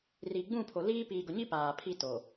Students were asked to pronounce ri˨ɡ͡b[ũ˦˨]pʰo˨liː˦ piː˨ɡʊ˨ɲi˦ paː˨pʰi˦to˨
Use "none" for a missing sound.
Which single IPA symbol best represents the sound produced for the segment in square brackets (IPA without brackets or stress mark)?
ũ˦˨